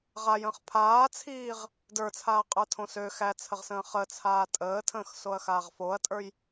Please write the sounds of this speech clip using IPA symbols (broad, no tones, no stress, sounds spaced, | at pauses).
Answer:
ʁ a j ə̃ː χ pʰ aː t͡sʰ iː ʁ | d ə˞ t͡sʰ aː qʼ ə˞ tʰ õ s ø x æ t͡sʰ ə ʁ s ə̃ː χ ə t͡sʰ aː tʼ əː tʰ ə̃ː x s o ɐ̯ x aː ʁ f o ɐ̯ tʼ ə˞ j